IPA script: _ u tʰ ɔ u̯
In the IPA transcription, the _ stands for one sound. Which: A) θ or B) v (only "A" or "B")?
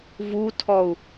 B